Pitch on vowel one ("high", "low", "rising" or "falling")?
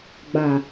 low